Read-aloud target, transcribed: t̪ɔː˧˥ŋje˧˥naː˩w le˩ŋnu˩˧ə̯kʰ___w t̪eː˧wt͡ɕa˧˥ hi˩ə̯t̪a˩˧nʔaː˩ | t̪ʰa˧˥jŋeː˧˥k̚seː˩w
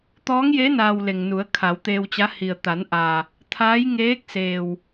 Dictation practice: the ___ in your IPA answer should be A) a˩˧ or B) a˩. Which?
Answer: A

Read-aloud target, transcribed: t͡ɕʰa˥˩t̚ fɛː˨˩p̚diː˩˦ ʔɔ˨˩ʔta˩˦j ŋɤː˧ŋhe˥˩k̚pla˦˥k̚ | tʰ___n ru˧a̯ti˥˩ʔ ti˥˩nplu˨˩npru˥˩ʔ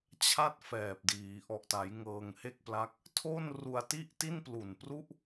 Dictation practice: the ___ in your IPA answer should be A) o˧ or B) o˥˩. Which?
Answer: B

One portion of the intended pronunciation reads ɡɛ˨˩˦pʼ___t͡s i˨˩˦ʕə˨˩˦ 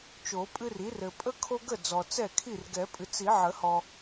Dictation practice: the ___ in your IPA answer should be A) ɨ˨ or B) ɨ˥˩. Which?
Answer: A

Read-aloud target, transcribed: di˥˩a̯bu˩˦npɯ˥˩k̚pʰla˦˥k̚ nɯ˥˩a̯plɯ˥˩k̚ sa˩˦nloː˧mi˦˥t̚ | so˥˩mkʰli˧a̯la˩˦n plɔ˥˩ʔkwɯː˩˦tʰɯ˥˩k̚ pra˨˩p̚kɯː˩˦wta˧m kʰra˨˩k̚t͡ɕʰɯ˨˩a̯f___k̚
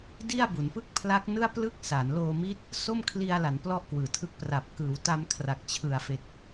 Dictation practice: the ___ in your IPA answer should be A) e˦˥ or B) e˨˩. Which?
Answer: B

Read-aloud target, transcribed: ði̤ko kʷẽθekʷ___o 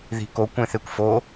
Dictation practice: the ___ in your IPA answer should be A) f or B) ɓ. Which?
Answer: A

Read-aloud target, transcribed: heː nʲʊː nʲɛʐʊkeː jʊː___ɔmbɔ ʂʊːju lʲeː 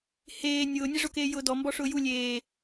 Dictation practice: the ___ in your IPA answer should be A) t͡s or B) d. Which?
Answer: B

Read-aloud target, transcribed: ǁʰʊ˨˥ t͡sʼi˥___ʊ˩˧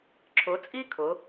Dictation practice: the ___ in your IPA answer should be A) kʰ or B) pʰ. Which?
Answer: A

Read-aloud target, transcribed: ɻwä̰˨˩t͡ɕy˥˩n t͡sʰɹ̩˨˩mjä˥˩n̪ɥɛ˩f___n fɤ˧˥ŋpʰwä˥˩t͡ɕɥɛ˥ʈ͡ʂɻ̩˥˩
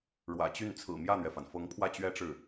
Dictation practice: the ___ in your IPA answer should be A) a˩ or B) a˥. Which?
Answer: A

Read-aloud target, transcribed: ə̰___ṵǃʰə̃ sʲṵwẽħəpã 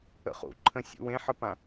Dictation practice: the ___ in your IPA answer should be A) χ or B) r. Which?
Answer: A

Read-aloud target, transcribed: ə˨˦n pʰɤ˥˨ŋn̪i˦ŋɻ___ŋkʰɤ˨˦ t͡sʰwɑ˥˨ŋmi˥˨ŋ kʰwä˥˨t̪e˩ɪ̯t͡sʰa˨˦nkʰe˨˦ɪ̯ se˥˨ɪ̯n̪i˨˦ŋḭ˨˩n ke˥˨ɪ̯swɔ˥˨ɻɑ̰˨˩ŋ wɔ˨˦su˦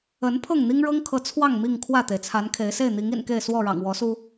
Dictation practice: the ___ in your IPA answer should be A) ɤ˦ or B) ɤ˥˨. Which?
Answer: A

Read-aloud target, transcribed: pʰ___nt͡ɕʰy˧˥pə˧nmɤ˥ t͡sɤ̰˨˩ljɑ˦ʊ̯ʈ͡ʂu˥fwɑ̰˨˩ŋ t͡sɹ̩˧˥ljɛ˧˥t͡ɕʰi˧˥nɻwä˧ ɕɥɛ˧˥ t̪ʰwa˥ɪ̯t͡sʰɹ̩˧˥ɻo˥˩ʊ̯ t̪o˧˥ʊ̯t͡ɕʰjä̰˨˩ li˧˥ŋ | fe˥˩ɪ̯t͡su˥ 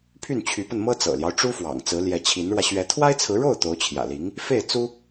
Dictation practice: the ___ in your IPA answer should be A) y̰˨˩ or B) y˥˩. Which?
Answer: B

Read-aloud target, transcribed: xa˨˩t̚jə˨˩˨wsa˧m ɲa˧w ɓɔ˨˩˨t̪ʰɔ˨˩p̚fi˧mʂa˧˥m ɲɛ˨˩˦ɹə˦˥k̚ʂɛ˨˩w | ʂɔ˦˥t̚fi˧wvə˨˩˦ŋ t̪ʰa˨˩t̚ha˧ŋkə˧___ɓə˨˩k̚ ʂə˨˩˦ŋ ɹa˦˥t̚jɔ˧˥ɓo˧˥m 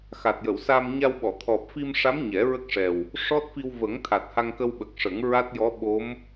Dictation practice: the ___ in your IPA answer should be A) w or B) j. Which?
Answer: A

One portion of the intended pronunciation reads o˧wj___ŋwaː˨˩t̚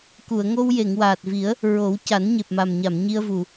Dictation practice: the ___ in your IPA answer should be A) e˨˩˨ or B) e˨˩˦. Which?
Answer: A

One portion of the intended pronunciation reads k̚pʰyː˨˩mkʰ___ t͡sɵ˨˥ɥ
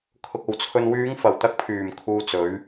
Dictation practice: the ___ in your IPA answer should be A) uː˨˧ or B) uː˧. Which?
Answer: B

